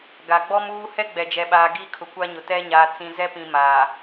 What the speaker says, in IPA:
ɡ a˨ ɡ͡b ɔ˦ m uː˦ h ɛ˦ ɡ͡b ɛ˨ d͡ʒ ɛ˨ ɓ aː˨ ɡ iː˦ kʰ ʊ˨ kʷ a˦ ɲ ʊ˨ t ɛ˦ ɲ aː˨ t͡s ĩ˨ z ɛ˦ p ĩ˨ m aː˨

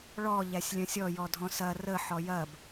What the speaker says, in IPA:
ɭ ɔ ʎ æ sʲ lʲ ɐ̃ sʲ ɔ j ɔ dʱ ɔ̃ s ɐ r ə ħ ɔ j ɐ b

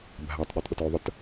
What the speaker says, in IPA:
bʱ a tˤ ɗ ʉ tˤ ɗ ʏ t ʉ ðˤ ʊ t

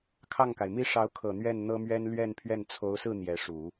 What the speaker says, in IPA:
kʰ ɑ˥˩ ŋ k a˩ ɪ̯ m i˥ ʂ ɑ˧˥ ʊ̯ kʰ ɤ˨˩ n̪ ɥ ɛ˥˩ n n̪ ɤ˥ m ɥ ɛ˥ n l ɥ ɛ˥˧ n pʰ ɥ ɛ˥˩ n t͡sʰ o˧˥ ʊ̯ s ɹ̩˥˩ n̪ j ɛ˧˥ ʂ u˨˩˦

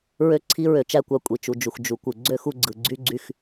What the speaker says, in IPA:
ɹ ø˥ ǀʰ i˥ ɹ ø˧ t͡ʃ æ˥ kʷ ɑ˧ kʷʼ i˩ t͡ʃ u˩ d͡ʒ u˩ x d͡ʒ u˩ kʷ ɯ˩ ɡ͡ǀ ø˥ x u˧ ɡ͡ǀ ɯ˩ ɡ͡ǀ y˥ ɡ͡ǀ y˧ x

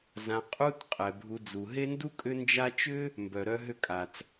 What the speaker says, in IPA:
z ã˨ qʼ u˦ t qʼ ɛ˩ bʱ u˨ d͡z u˩ ɦ e˥ n d u˥ kʼ ʏ˦ n d͡ʒ a˦ t͡ʃ ʏ˥ | m b œ˩ ɾ œ˦ ɦ ʏ˦ kʼ a˩ t͡s

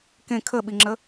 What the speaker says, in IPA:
k ẽ kʰ ə ɓ i ŋ͡ǁ ə

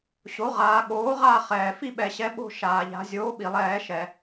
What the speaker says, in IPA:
ɕ o˩˥ ʁ aː˩˧ ɠ oː˩˥ ʁ a˦˨ χ ɛː˩ f i˦ ɓ ɛ˩ ɕ ɛ˩˥ ɓ o̤˦˨ ʃ aː˩ ʎ a̤˩˧ zʲ oː˩˥ ɓ i˩ lˠ ɛː˧˩˧ ʃ ɛ˩

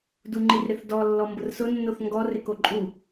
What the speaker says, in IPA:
d u ŋ͡ǃ i r ɾ ɪ θ d ɔ lː ɔ m b ʊ r s ʊ nː o θ ŋ ɡ ɔ r ɪ k o ǃʼ u

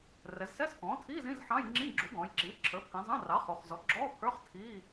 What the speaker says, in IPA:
r ɛ˩˧ z s ɛ˧˥˧ s k ɔ̃ː˩˥ tʰ iː˧˥˧ z ĩ˧˥˧ z ħ ɑ̃˧˥˧ j ŋ͡ǁ ĩ˧˥˧ ɡ͡ǁ u˩˥ ɡ ɔ̃ː˩˧ j ǁ iː˩˥ ǁʰ ə˞˩˥ pʰ ĩ˩˧ zˤ ɑ̃˧˥˧ r ɑ˩˥ χ u˩˧ χ z ɔ˩˥ ɡ͡ǁ ɔː˧˥˧ pʰ ə˞˧˥˧ χ tʰ iː˧˥˧

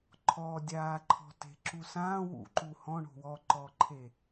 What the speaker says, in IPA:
ǃʰ ɔ dʲ aː ǃʰ ɔ̤ t e̤ ǁ u s ãː w ṵ ǃ u h ɔ̃ ɳ o̤ w ɔ ǃ ɔː ǃʰ e

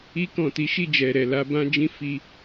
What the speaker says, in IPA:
i˧ k ɔ̃˨ t i˨˦ ʃ i˦˨ d͡ʒ ɛ˨ ɾ ɛ˨ l a˧ b ã˦ d͡ʒ ĩ˦ f i˧

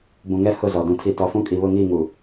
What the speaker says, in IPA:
b ũ˨ ŋ ɛ˦ h ʊ˦˨ z ɔ˨ d ũ˨ tʰ i˨ t ɔ˨ f ũ˦ kʼ i˨ β ʊ˦˨ ŋ iː˦˨ ŋ u˨

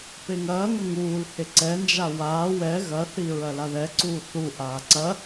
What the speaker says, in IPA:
p e ŋ ɐː ŋ ɐ ŋ uː l h e ǀ ɛ n d͡ʒ a w aː w ɛ ɣ ɐ θ i ɹ ɐ l a ð ɛ ǀ uː θ u ʔ aː ǀ ɐ

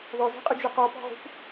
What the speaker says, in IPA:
ð ɔ z i̤ qʼ ʊ d͡ʒ ʊ q ɔ p ɔ̤ ʁ ṳ p

